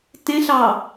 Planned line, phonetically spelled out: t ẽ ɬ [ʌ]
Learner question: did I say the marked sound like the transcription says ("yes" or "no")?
no